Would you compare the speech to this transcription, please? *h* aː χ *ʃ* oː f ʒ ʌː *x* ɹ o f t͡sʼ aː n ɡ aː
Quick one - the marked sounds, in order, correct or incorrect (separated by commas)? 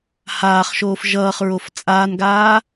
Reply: correct, correct, incorrect